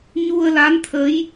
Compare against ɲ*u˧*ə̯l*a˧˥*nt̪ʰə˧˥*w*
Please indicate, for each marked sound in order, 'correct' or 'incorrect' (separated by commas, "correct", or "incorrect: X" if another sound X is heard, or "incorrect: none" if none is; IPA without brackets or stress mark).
correct, correct, incorrect: j